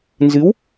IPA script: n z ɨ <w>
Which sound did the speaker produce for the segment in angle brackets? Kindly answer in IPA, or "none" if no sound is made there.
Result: w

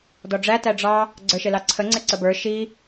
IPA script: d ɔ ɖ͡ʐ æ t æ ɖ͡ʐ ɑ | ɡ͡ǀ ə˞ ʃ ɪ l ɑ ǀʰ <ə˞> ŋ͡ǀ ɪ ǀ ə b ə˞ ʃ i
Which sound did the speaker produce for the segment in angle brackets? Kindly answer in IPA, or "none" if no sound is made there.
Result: ə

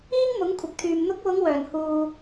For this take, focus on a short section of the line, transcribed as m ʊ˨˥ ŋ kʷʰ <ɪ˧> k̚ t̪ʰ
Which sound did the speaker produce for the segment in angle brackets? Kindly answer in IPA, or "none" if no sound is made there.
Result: ɪ˨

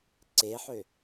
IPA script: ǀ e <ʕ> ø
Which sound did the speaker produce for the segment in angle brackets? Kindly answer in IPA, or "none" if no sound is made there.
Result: ħ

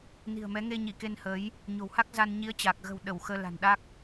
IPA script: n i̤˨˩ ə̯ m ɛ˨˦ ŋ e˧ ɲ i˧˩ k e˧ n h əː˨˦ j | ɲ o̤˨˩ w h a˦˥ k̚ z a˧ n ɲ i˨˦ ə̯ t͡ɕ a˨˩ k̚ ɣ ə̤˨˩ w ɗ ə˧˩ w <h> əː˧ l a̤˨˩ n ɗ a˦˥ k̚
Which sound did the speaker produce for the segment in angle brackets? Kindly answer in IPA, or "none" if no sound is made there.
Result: x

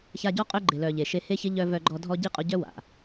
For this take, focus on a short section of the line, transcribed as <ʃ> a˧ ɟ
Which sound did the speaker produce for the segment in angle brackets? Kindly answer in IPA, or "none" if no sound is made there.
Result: ç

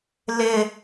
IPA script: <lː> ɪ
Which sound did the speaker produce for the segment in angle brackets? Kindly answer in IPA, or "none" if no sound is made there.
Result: l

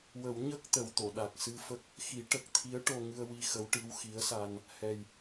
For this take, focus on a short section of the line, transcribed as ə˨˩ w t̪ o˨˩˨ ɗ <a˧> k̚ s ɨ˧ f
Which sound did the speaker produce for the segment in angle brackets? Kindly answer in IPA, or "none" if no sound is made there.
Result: a˨˩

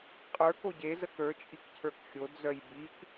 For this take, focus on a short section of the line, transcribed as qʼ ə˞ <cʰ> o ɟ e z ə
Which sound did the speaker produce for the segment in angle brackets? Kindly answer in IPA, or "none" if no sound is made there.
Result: k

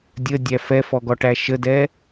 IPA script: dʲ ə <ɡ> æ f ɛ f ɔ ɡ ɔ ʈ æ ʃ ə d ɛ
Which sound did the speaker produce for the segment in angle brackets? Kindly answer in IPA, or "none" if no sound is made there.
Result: dʲ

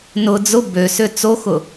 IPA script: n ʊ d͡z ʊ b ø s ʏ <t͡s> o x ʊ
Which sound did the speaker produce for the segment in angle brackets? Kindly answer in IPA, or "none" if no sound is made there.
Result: t͡s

